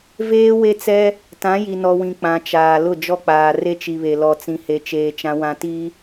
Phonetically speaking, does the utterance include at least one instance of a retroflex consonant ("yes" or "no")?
no